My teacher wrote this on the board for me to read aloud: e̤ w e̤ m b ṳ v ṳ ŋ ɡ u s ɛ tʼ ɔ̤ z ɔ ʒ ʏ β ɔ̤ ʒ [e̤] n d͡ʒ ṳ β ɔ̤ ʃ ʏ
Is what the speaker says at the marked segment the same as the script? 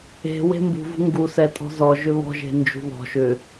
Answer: yes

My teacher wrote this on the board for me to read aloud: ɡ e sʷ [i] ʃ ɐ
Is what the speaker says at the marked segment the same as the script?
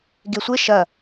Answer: no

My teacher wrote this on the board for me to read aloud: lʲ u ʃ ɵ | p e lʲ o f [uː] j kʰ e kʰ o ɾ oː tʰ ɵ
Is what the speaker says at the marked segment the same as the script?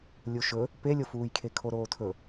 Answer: yes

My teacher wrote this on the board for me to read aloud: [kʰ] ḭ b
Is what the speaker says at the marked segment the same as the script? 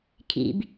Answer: yes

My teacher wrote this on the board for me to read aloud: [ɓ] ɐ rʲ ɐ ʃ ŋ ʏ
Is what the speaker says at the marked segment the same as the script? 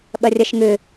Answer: yes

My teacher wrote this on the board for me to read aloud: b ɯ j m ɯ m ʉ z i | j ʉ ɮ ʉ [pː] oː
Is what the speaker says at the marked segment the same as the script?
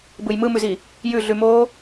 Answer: no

